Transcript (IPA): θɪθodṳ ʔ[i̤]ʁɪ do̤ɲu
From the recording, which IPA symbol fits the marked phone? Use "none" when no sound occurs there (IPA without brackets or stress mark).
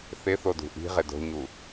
i̤